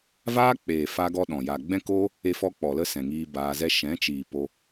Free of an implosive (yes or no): no